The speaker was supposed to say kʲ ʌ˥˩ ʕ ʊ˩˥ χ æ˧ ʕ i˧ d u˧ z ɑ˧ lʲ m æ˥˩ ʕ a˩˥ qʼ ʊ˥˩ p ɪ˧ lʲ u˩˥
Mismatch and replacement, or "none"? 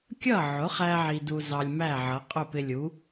a˩˥ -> ʌ˩˥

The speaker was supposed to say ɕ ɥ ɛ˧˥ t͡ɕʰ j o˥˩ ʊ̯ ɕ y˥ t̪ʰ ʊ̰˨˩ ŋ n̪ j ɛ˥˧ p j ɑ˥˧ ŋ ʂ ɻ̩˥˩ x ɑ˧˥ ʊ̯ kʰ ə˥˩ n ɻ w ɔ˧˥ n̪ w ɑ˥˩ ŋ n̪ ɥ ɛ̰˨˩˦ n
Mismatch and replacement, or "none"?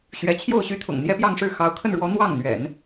none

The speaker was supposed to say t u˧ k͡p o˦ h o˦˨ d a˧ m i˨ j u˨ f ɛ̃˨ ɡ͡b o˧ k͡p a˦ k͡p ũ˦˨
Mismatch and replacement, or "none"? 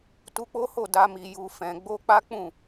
none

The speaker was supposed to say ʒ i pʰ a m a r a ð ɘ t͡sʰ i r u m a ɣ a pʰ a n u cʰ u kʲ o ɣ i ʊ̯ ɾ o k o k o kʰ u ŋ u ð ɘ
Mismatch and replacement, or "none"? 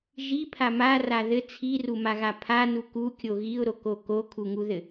cʰ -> k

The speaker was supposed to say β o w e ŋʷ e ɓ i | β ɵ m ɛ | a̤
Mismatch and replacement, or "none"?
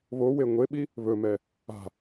none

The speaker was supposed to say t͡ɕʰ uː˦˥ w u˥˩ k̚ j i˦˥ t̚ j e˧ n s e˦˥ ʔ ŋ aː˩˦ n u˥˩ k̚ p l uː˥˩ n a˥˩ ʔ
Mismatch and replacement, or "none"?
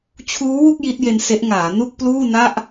none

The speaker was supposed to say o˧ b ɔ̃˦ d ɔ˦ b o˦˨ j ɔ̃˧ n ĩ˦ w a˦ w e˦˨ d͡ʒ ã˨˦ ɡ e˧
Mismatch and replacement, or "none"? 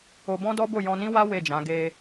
none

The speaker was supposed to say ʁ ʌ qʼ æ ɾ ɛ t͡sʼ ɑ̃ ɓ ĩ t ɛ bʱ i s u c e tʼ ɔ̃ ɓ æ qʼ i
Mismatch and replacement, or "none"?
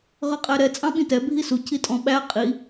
e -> i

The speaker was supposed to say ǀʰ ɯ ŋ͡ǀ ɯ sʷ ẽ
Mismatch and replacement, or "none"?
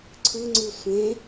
none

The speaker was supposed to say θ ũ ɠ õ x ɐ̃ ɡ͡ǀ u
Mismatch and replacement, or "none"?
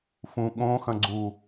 θ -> f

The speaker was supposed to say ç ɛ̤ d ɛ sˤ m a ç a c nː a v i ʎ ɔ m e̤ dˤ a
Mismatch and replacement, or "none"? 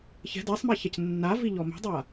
none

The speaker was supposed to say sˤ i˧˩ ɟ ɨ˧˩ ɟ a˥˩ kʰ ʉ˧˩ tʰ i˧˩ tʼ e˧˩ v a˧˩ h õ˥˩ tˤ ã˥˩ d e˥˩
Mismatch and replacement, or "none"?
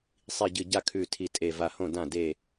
tˤ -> d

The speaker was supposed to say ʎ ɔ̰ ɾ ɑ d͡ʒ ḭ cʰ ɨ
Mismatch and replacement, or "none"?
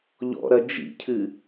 ɑ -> ɐ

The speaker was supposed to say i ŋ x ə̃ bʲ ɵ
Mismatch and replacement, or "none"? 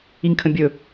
x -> kʰ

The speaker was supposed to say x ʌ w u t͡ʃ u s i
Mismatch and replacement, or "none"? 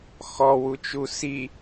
ʌ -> ɔ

